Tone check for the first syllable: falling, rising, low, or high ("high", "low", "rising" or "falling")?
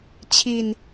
low